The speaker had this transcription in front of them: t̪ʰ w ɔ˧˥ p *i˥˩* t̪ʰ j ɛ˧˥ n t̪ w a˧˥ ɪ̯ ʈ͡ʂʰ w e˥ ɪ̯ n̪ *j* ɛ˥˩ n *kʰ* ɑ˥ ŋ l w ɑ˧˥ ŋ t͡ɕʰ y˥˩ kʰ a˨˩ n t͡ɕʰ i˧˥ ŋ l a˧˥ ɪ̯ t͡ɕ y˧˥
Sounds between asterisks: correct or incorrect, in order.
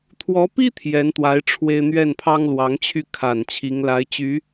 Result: incorrect: i˥, incorrect: ɥ, incorrect: pʰ

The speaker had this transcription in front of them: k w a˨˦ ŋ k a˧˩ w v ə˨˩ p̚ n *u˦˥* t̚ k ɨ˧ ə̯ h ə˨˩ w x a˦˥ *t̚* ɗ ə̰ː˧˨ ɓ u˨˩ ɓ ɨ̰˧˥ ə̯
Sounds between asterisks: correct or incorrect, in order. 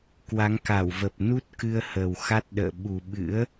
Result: correct, correct

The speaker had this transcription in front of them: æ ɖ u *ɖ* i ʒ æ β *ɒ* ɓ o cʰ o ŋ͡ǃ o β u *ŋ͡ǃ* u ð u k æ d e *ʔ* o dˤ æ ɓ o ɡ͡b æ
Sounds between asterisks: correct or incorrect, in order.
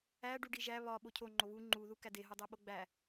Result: correct, correct, correct, incorrect: ɦ

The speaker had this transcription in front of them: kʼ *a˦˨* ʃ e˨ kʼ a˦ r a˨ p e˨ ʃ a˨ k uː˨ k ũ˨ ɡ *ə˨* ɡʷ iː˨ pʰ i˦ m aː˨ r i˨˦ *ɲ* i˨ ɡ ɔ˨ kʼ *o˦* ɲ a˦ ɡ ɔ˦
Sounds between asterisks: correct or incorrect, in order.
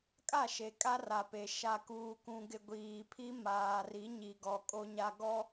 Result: correct, incorrect: ɪ˨, correct, correct

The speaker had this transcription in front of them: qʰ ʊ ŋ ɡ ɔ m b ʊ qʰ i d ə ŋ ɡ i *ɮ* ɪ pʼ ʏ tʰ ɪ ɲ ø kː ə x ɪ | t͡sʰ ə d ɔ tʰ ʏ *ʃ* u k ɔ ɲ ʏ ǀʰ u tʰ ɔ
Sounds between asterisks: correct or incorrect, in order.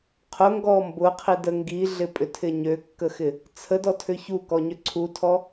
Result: correct, incorrect: ç

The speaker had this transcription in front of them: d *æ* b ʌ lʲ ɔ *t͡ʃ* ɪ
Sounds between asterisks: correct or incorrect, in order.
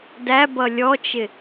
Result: correct, correct

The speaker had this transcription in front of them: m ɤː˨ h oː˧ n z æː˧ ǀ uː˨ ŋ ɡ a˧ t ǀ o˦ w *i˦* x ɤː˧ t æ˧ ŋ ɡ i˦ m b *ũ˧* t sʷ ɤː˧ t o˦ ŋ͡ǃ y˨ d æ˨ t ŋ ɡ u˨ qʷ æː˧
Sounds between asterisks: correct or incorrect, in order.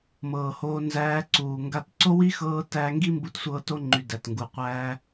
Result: correct, incorrect: u˧

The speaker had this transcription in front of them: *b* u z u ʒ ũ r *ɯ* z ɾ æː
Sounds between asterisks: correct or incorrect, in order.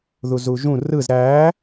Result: incorrect: ð, correct

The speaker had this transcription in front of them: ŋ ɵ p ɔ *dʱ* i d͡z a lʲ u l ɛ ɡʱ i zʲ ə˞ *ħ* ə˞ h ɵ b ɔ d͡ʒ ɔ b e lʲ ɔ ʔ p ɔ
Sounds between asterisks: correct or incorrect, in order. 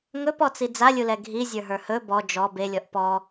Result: incorrect: t͡s, incorrect: ɦ

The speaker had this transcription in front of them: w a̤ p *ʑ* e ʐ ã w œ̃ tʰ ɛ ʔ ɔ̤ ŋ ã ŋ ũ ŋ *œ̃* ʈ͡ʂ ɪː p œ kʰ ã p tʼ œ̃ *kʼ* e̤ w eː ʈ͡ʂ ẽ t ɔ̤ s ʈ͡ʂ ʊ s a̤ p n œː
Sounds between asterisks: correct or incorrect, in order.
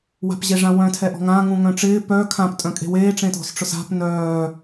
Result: correct, correct, correct

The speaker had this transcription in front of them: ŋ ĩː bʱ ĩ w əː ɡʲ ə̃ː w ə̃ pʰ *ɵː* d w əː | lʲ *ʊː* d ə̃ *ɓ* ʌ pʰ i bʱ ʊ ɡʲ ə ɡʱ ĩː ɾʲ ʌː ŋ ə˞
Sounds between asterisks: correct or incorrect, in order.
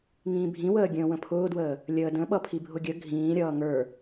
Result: incorrect: ʊː, incorrect: əː, correct

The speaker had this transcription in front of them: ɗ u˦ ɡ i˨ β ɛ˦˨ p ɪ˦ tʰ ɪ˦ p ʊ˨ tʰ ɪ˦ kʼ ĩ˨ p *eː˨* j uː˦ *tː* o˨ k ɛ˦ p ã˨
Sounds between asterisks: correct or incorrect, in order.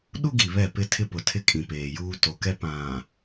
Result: correct, incorrect: t

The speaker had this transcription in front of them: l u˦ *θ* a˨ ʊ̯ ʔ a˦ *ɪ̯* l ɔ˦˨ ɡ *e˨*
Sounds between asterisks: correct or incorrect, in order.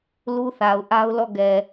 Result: correct, incorrect: ʊ̯, incorrect: ɛ˨

